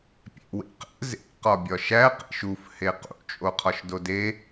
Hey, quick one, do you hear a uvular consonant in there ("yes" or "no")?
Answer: yes